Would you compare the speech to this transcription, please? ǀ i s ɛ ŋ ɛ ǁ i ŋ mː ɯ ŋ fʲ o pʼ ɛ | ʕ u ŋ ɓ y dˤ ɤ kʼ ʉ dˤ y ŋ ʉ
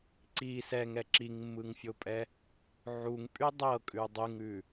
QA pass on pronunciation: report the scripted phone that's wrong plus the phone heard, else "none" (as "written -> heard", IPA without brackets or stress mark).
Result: ɓ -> pʼ